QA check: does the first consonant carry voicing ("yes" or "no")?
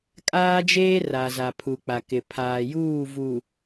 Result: no